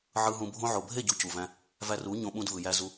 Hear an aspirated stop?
no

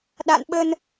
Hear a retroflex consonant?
no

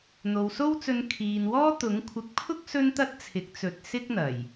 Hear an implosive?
no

